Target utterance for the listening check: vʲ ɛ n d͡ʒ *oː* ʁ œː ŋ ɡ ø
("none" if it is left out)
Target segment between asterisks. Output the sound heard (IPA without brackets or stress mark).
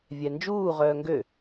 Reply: uː